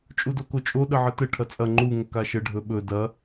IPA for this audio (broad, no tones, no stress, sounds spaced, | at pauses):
t͡ʃʼ u d o k o t͡ʃʼ o ɗ ə ʕ ə t ə ʈʰ ɐ t͡sʼ ɐ ŋ͡ǃ u ŋ ə k a ʃ ə ɖʱ ɵ ɓ ɵ d ɐ